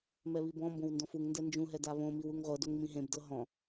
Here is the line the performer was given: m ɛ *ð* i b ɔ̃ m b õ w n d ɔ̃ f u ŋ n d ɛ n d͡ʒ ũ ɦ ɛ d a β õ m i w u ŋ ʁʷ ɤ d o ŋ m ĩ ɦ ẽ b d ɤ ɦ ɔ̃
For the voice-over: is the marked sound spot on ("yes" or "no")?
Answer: no